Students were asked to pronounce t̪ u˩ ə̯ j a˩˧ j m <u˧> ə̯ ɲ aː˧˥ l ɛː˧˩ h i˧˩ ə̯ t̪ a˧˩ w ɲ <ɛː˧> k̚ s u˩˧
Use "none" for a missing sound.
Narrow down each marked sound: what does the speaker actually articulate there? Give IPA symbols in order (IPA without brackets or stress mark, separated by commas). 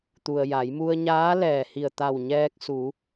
u˧, ɛː˧